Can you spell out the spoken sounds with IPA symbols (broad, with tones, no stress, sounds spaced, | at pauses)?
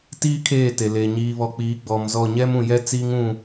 t iː˦ kʰ eː˦˨ t e˨ l eː˨ ɲ iː˨ β ɔ˨ k͡p iː˨˦ ɡ͡b ɔ˨ m z ɔ˦˨ ɲ ɛ˦ m ũ˨ j ɛ˦ t͡s iː˦ ŋ ũ˦˨